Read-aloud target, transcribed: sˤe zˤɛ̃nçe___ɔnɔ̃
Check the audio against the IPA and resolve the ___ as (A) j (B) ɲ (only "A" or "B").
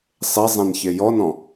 A